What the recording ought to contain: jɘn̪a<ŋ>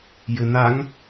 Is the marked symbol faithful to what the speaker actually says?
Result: yes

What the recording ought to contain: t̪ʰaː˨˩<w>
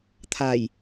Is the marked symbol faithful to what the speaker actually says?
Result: no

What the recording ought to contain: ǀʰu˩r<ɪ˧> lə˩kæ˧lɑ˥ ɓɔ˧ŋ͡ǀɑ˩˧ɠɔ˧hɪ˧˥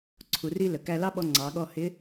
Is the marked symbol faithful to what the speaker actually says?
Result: no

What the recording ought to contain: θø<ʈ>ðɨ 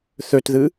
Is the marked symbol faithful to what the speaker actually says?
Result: no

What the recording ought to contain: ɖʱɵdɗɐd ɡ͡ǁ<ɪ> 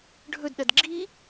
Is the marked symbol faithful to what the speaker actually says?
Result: no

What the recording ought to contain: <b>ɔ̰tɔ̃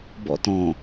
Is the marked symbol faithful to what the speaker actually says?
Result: yes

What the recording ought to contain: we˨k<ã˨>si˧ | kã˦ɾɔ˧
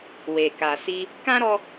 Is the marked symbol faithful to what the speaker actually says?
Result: no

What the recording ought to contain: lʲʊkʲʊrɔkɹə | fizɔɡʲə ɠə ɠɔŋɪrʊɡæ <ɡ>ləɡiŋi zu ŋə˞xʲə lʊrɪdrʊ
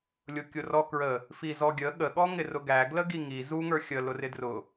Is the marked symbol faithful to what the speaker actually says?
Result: yes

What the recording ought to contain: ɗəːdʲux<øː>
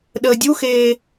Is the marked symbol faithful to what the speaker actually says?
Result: no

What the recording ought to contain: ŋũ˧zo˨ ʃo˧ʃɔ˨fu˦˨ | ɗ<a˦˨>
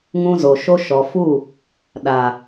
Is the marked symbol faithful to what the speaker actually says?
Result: no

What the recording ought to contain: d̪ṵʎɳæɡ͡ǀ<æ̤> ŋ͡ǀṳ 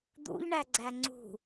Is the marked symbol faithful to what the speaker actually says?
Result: no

